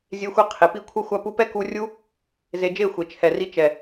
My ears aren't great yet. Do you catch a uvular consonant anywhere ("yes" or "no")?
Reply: yes